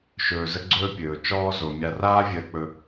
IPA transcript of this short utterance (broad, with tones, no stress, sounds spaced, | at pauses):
ʃ ɵː˨ z ə˦ ɡ͡ǀ ɵː˦ pʲ ɵː˩ t͡ʃ ɔː˦ z o˩ mʲ a˨ r aː˦ vʲ əː˨ k͡p ɵ˨